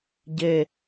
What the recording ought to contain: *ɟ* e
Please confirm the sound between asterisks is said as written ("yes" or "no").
yes